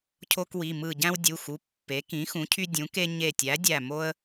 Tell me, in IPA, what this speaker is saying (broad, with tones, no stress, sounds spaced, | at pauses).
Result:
cʰ o˦ k w i˩˧˩ m ɯ˧˩ ɟ æ̃˦ w dʲ u˩˧˩ x u˩˧˩ pː e˩˥ k ĩ˩˥ x ũ˩˥ cʰ y˦ dʲ ũ˩˥ k e˦ ɲ e˧˩ tʲ æ˩˥ dʲ æ˧˩ m o˦ ə̯